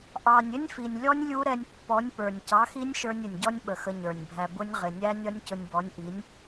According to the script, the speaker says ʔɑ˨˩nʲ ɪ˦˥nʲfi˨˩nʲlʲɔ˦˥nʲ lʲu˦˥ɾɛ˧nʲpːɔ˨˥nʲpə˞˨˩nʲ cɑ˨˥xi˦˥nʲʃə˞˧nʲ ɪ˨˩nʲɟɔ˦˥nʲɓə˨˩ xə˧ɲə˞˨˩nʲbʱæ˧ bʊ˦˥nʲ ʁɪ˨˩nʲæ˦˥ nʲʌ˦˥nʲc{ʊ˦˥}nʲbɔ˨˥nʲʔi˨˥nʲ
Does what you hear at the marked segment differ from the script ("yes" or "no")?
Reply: yes